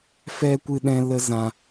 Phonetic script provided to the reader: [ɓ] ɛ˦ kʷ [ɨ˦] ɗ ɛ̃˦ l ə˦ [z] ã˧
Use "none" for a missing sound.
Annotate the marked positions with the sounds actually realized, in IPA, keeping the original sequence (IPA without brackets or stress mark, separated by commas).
f, ɨ˦, z